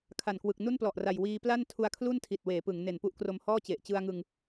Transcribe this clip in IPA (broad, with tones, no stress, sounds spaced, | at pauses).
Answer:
kʰ a˨˩ n k w ɯ˨˩ k̚ n u˥˩ n p l ɔ˨˩ ʔ r a˨˩ j w iː˧ p l a˥˩ n tʰ u˧ a̯ kʰ l u˥˩ n tʰ i˨˩ t̚ w eː˩˦ p ɯ˩˦ ŋ n e˨˩ n p u˥˩ ʔ k r o˧ m h ɔː˥˩ t͡ɕ e˨˩ ʔ t͡ɕ ɯ˧ a̯ ŋ ɯ˧ ŋ